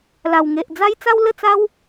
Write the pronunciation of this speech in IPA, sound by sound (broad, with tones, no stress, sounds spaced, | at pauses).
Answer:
l a˨˩ w ŋ e˨ ʔ d͡z a˦ j t͡s a˦ w l ə˥˧ t͡s a˦ w